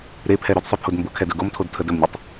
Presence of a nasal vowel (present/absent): absent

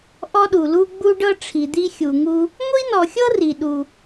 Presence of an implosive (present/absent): present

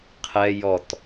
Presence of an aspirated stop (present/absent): present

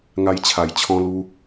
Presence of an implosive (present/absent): absent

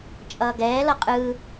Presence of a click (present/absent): absent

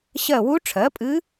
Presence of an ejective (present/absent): present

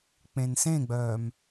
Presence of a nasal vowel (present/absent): present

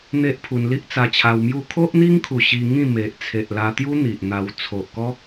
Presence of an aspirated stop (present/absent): present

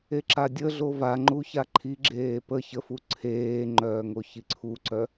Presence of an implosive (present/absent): absent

